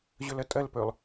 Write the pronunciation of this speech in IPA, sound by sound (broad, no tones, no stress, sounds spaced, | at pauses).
ʑ ɵ l ɐ tʼ ɐ l p ɵ lˠ